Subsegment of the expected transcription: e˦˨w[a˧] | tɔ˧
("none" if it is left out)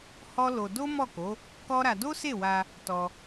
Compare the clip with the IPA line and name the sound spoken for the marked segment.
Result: a˧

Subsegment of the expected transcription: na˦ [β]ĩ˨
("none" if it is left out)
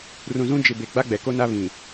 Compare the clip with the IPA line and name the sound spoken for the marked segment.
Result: β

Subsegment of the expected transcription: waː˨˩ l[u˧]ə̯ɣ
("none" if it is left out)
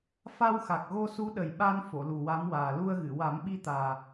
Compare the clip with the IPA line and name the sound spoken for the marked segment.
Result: u˧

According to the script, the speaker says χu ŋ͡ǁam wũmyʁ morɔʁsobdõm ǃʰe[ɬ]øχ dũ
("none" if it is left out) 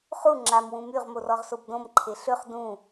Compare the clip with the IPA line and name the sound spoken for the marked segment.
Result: ɬ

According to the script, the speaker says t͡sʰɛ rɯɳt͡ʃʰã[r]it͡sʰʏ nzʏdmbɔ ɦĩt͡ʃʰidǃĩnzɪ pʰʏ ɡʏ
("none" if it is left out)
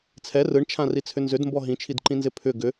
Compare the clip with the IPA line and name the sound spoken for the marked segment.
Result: r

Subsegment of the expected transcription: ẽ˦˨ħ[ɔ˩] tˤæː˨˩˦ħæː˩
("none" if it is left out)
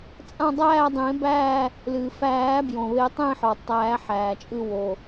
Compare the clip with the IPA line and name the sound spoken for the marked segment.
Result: ɔ˩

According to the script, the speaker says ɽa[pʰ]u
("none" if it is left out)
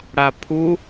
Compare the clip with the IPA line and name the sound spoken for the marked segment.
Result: pʰ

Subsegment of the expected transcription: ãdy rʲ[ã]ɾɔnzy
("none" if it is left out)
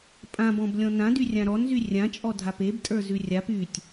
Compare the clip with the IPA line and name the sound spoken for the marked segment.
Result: ã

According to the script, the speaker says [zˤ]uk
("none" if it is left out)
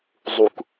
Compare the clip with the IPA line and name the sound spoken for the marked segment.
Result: zˤ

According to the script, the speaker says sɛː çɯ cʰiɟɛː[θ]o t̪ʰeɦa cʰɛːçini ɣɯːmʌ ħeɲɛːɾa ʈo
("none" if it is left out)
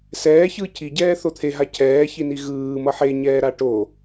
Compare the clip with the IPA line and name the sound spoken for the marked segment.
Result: θ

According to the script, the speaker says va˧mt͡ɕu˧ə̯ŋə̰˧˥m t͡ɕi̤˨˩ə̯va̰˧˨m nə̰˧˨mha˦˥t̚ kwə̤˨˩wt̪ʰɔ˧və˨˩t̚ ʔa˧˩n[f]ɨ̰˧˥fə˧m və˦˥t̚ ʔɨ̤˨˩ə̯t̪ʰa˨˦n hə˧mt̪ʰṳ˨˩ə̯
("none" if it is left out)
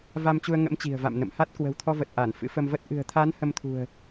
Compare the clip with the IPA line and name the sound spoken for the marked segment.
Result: f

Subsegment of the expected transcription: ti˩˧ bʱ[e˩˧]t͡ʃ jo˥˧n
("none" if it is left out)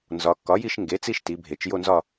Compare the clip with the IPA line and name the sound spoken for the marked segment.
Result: e˩˧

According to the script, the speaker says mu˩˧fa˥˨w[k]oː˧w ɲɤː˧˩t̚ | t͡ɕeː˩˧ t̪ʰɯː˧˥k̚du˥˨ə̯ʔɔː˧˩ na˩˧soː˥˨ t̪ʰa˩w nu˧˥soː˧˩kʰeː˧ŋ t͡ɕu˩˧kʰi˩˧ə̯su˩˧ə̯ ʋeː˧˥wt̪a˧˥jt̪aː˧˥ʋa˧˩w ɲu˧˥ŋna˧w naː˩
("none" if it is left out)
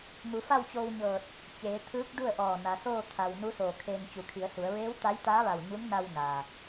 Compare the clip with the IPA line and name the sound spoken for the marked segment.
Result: t͡ɕ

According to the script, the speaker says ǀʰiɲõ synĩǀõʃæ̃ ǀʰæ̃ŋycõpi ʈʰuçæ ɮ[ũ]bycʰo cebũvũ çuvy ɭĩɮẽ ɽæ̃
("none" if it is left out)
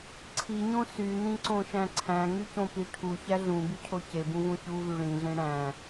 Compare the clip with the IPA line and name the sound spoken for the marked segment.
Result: ũ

